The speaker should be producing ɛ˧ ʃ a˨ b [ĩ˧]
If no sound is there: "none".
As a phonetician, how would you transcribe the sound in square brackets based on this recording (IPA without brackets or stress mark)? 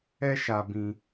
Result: ĩ˧